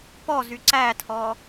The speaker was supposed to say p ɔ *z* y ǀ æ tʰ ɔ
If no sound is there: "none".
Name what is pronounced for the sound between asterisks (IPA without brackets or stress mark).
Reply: z